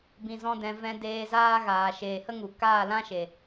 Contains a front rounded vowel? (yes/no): no